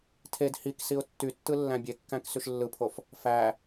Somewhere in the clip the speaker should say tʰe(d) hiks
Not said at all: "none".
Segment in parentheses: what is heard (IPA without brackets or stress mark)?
d